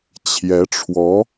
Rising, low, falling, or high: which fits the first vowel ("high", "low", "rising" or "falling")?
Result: rising